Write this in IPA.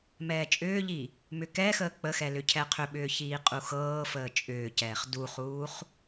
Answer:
mɛːt͡ʃʼʏːʎi | mʏkɛxəː k͡pəxɛ lʏcʰɛqʰʏɓʏː çiːqʼuxɤːfəː t͡ʃʼʏːcɛːχ duχuːχ

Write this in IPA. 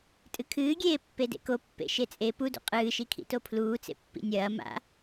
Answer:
tʼɨkʰɨːɡʲeː pːedḛko pːḛʃet͡sʼe pudṵ qʼɨːʃikʰḭto pʰluːt͡sḛ pːḭnʲɐː ma̰

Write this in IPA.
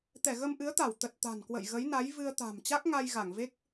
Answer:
t̪ɛ˧˩ɣə˧mʔɨ˨˦ə̯t̪a˧˩w t̪ə˨˩t̚t̪a̤˨˩nkwə̰˧˨j ɣə˨˦jna˨˦j vɨ˧ə̯t̪a̤˨˩m t͡ɕa˦˥k̚ŋa˧j ɣa˧˩ŋve˦˥k̚

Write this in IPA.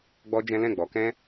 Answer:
ɡ͡bɔ˦d͡ʒɛ̃˦ lɛ̃˦˨ ɡ͡bɔ˨˦kɛ̃˦

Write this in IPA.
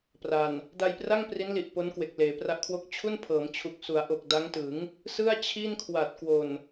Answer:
pra˨˩n | da˧jpra˥˩ŋ pri˦˥nli˨˩ʔ po˦˥nkwe˨˩k̚ leː˩˦pra˦˥ʔkʰwo˥˩k̚ t͡ɕʰu˥˩npʰɤː˩˦mt͡ɕʰu˨˩k̚ su˩˦a̯ʔo˨˩k̚da˦˥ŋtɯ˩˦ŋ | sɯ˥˩a̯ t͡ɕʰi˥˩nkʰwa˨˩t̚ kwo˨˩n

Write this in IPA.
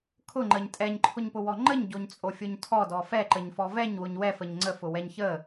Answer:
kʰʊŋ͡ǃəɲ tʼɛɲǃʰʊɲpʊwɔ ŋ͡ǃəɲɟoɲt͡sʼofʲoɲ tʰɔdɔ fɛǃəɲfɔ vɛɲwʊɲ wɛfəɲ ŋ͡ǀəfʊwɛɲ çə

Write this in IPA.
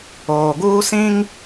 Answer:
oː˨ɡuː˦sĩ˦ŋ

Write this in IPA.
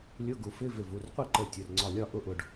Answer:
lʲʊ˧˥˧ɡu˩˧f ɪ˧˥˧ vɪ˧˩vu˩˧˩rqʷi˥˩ ǃə˧˩ tʲʊ˩˧˩rŋ͡ǀɒ˧˩lʲɒ˥˩ ʔʊ˥˩ʔʊ˧˩ɖ

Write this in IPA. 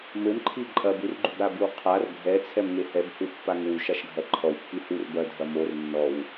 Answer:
mɘmǃʰi ǃʼɐb urɡ͡ǃubɾa bɨwqʰar ɡʱɛ t͡sʰɛmŋehɛbhu pːaŋwuʃ aʃɡʱɐǃʰɔw pːihur bɐdʱɐ mor nːɔw

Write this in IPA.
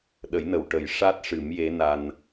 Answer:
ɗə˨˩˦jnə˨˩˨wʈə˨˩˦j ʂa˦˥t̚ ʂɨ˨˩˦mje˧˥na˧n

